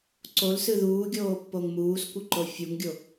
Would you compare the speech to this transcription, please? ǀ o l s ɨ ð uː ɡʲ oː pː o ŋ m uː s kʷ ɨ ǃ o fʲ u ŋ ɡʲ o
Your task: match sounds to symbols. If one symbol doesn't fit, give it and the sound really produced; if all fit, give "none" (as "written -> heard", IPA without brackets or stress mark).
none